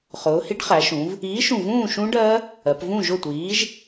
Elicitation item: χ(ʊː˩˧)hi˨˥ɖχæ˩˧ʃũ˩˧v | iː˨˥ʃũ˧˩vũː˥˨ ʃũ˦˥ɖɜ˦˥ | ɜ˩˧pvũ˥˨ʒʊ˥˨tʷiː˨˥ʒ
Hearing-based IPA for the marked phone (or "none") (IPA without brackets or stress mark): ʊː˩˧